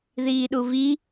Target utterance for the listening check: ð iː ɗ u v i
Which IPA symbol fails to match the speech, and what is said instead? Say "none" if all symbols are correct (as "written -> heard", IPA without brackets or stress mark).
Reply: none